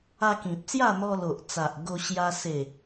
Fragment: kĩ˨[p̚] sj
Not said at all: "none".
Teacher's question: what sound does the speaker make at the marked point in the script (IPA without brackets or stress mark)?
p̚